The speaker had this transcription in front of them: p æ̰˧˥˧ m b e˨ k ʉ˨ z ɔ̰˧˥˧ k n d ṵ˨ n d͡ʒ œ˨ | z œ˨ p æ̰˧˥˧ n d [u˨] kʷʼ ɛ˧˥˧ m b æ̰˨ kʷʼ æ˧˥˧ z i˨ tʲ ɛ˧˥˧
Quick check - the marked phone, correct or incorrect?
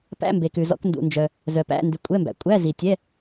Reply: incorrect